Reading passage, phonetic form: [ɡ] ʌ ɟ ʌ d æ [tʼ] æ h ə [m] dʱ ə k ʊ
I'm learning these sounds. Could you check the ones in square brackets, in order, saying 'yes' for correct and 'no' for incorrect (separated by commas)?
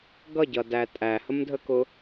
yes, yes, yes